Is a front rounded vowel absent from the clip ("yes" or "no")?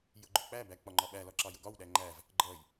yes